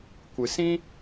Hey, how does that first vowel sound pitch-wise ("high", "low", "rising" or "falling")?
low